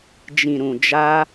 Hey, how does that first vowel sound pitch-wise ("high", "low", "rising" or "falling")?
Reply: low